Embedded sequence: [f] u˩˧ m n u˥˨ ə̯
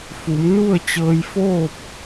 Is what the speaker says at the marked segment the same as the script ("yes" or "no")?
yes